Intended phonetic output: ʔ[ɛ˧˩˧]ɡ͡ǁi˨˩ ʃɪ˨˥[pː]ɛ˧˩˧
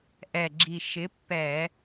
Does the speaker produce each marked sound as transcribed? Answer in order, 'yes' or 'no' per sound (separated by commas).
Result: no, yes